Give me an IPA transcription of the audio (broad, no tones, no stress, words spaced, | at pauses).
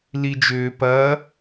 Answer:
lid͡ʒʏː pɐ